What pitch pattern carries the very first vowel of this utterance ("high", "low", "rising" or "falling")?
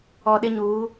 low